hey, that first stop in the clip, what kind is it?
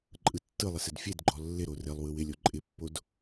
click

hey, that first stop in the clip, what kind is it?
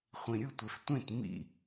plain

